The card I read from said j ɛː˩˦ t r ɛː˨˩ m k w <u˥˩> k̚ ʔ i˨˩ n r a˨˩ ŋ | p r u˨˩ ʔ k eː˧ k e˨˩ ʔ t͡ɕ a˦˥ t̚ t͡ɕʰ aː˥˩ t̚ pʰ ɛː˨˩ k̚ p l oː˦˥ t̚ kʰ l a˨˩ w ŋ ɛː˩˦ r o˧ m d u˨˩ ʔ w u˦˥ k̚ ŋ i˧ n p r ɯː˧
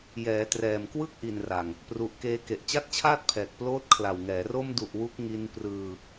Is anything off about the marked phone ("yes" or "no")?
yes